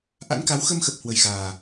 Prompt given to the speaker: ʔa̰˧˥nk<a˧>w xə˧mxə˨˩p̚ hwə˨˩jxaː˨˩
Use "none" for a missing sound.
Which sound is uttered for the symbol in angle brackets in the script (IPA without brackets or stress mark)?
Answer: a˨˦